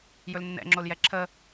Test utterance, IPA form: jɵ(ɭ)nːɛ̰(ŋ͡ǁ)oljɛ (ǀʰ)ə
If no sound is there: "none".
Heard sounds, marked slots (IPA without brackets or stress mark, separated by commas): l, ŋ͡ǁ, ǁʰ